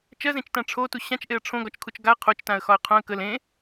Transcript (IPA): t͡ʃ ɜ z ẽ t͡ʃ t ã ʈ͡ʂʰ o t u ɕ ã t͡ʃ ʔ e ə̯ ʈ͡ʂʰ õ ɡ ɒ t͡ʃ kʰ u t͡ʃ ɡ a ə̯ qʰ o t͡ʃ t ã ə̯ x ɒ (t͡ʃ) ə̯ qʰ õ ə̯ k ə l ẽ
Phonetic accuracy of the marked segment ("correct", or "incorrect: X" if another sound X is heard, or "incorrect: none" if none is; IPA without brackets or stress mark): incorrect: none